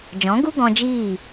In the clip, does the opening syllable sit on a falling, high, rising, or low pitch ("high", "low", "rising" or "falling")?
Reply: rising